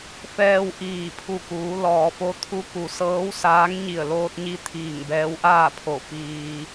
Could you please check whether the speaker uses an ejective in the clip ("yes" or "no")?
no